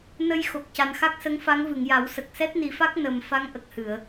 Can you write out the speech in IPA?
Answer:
nə˧j xo˨˩k̚ca˨˩nxa˦˥k̚sə˧˥ŋ fa˧˥ŋvɨ˨˩˨ŋja˨˩˦w sə˨˩k̚sɛ˦˥t̚ni˨˩˦fa˦˥k̚ nə˨˩m fa˧˥ŋ ʔə˨˩k̚hɨ˨˩˨ə̯

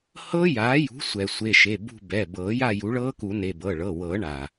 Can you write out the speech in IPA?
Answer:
hɤ˦˥ jaː˩˥jṳ˩˥sʷɛ˩ sʷe˩˧˩ʃe˩˧˩ bṳ˦˨bɛ˩˧˩ bɤː˨˩˦ja˦˨ ju˩˥ɭɤː˦˥ku˨˩˦ne˩˧˩ bɤ˩˧˩ɭɤ˩˧˩wɤː˨˩˦ɳaː˩

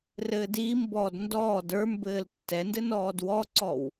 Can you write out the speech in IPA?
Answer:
rɘːdiːmbɔːd ndɔːd ə˞mbɘːl tːɛndɘ nɔːdwɔǀɔw

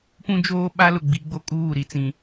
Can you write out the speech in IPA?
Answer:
pũ˦ d͡ʒoː˦ ɓa˦lʊ˨ɡ͡bi˨˦ɡ͡bo˦ kʼuː˦˨ɾi˨t͡sĩ˨

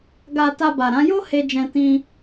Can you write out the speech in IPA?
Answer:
ɡa˧ ta˧ba˨ɾã˨˦ jo˦ he˧d͡ʒɛ̃˧ tĩ˧

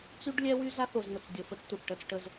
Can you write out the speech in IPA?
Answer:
t͡sy˦ɖlʲɛ˦wy˦ za˦θo˨znə˨t͡s dʲə˨ fə˦t͡stʷə˨θ ʈə˦˨t͡sʈə˦z

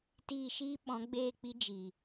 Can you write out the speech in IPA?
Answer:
tiː˦˨ʃiː˦ ɓɔ̃˨˦ɡ͡beː˦˨k͡pi˧ d͡ʒi˨

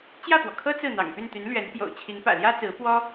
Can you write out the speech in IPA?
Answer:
t͡ɕjä˥˩pwɔ˩kʰɤ˥ t͡sɹ̩˥˩n̪ɑ̰˨˩ŋ py˥˩nt̪y˧˥n lɥɛ˧˥n pjo̰˨˩ʊ̯t͡ɕʰi˧˥ŋpä̰˨˩ ljä˥t͡sɹ̩˧˥ pwɔ˥

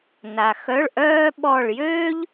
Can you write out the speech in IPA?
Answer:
na˨xœ˧˥˧ɭʔœː˥ ɓɔ˥˧ɭ jøː˥ʎ

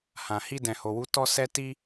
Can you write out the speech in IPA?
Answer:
hã˨ hi˧ dɛ̃˨ho˨wu˨˦ tɔ˦sɛ˦ ti˦

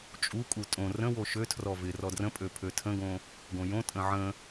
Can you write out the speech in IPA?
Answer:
t͡ʃʼukʼu tʼõ rə̃ woʃøtʰrɔ vɪ rɔdrə̃pʼø pʰøtʰə̃ɡõ | ɡõjõtʼə̃ ʕə̃

